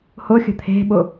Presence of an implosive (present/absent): present